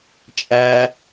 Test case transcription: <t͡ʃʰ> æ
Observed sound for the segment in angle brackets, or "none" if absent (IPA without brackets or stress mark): t͡ʃʼ